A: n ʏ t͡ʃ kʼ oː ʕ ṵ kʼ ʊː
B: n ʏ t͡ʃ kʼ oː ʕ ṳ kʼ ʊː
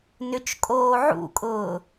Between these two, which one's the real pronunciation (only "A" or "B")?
A